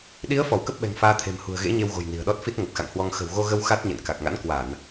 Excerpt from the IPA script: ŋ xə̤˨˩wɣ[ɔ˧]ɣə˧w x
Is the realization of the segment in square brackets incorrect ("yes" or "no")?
yes